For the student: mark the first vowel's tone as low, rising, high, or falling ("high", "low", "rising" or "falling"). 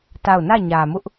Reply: falling